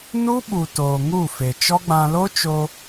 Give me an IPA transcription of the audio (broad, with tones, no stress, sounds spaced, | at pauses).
n u˦ ɓ u˨ t oː˨ ŋ u˦˨ f e˨ t͡ʃ ɔ˦ ɡ͡b ã˧ l o˦ t͡ʃ o˧